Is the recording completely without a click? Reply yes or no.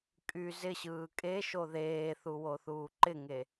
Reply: no